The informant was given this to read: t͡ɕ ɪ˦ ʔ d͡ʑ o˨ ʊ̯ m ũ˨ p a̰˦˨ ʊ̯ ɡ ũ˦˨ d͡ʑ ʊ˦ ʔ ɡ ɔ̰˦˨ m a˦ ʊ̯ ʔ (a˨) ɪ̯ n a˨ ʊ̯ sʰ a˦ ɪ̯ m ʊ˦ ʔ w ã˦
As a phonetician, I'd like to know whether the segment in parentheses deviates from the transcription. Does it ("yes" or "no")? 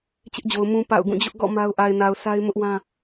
no